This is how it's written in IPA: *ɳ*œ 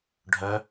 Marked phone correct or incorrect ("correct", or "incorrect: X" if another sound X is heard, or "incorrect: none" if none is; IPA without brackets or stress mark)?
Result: incorrect: ɖʱ